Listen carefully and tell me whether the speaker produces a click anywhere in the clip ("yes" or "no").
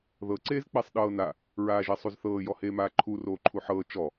yes